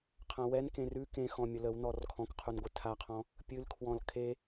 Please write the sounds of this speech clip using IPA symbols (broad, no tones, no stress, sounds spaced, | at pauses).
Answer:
qʰ ã w ɛ n k ẽ r ʉ k ẽ x ɔ̃ mʲ ə l ə w n ɔ r kʰ ɔ̃ k qʰ u n ɡʷ ɨ tʰ a qʰ ɔ̃ | pʲ ɨ l kʰ w ɔ̃ l kʰ e